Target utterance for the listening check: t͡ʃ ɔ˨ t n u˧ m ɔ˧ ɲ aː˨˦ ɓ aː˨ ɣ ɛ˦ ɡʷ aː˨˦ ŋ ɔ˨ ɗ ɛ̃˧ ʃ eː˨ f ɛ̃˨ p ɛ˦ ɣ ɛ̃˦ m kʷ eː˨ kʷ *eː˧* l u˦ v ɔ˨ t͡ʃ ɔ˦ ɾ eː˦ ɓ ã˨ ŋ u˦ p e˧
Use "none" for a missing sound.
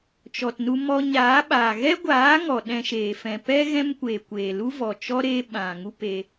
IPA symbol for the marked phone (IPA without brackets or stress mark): eː˨